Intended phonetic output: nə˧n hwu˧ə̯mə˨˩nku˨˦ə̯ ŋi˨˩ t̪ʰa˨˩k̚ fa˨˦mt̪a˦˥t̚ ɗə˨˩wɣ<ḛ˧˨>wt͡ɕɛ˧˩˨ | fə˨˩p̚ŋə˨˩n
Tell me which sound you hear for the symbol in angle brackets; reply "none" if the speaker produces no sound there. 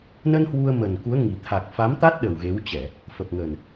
e˨˦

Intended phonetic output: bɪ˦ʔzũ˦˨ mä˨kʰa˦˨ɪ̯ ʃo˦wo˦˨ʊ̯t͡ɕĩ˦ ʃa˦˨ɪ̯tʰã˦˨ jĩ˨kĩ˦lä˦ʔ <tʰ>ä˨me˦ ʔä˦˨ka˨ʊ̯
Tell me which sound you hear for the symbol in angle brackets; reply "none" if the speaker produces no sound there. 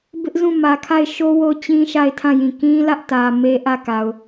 t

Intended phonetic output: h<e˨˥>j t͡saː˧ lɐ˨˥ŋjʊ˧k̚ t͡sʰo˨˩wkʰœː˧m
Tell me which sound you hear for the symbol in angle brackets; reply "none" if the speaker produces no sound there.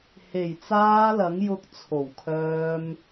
e˨˩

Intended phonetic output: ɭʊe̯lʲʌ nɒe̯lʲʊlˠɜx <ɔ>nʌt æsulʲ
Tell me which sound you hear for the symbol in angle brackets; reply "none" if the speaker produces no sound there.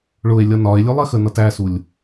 ə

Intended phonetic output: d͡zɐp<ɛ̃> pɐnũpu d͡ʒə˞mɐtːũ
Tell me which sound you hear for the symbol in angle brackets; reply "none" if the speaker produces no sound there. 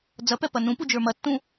ɛ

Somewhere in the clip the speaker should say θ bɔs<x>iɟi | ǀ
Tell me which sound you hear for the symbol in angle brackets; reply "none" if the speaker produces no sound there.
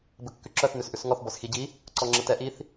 x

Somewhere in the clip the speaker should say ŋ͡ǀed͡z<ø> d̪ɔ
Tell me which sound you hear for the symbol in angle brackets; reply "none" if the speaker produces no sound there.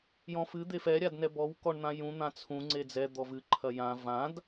ɛ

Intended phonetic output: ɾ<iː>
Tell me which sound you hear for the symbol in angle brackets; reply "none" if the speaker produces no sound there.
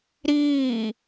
iː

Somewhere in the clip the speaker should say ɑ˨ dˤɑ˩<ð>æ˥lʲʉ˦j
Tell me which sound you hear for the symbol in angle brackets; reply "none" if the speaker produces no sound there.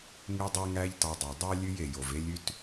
dˤ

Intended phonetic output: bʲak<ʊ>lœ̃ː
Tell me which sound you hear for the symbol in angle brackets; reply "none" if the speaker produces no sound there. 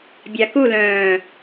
u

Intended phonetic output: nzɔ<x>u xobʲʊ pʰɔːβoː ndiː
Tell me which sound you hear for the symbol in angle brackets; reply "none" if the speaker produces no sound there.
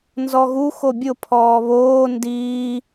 ɣ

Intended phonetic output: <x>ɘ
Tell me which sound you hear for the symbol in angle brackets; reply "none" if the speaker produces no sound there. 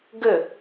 ɡ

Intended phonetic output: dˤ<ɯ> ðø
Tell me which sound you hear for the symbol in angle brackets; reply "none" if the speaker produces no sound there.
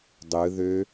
ɯ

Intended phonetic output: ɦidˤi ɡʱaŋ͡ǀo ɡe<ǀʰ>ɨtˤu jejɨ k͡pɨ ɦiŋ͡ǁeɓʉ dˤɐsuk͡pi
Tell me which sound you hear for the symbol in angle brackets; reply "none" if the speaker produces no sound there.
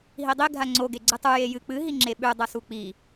ɡ͡ǀ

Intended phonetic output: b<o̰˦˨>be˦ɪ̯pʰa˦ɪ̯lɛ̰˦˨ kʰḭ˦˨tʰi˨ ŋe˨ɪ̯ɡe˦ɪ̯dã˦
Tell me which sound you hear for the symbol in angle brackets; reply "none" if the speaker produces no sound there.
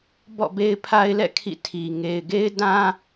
ɔ̰˦˨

